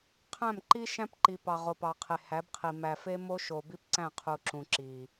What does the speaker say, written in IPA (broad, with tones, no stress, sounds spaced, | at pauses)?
qʰ æ̃˦˨ m ǃ i˦ ʃ æ̃˦ p ǃ i˨ p ɑ˨ ʁ o˨ p ɑ˨ qʰ e˨ h æ˨˦ b qʰ i˨ m æ˨ f e˦ m o˦ ʃ o˨ b i˦ p ǀ æ̃˦˨ qʰ u˨ ǁ ũ˨ ǁ i˨